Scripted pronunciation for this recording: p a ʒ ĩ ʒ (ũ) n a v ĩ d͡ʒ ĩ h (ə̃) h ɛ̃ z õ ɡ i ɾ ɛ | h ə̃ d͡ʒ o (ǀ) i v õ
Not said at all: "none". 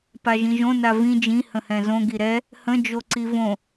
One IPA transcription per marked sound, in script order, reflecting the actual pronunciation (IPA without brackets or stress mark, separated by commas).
õ, ə̃, ǀ